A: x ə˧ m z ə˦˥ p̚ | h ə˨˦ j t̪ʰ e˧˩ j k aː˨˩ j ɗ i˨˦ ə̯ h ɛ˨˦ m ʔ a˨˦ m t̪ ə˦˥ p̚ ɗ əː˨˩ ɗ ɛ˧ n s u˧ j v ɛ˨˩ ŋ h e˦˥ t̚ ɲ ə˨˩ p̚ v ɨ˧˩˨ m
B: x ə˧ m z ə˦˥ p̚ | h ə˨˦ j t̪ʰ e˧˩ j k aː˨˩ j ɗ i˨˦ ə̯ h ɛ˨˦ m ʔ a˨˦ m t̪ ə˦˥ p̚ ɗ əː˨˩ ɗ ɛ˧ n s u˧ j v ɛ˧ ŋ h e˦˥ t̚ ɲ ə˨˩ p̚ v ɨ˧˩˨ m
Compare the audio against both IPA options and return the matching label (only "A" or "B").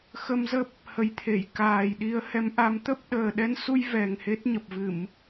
A